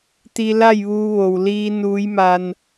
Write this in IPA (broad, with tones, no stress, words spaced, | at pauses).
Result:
t̪i˧la˥˨jʋuː˧ ʋo˩wliː˧ nuː˧˥jma˧n